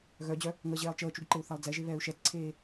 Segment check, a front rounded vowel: present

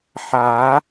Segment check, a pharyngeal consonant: present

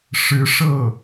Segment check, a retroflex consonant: present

